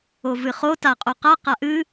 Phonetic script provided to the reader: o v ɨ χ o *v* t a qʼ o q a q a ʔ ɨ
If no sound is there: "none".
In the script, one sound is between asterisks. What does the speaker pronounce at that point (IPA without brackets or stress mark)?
none